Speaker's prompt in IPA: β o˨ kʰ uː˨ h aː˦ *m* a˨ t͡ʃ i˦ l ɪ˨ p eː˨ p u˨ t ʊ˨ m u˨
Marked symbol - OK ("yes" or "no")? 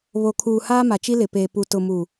yes